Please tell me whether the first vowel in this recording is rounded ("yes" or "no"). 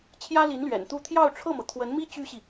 no